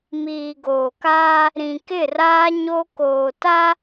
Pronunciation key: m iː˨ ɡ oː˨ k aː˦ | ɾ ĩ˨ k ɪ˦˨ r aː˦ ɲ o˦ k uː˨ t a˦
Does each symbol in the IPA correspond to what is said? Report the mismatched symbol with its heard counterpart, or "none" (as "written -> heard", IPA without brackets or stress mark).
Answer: uː˨ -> oː˨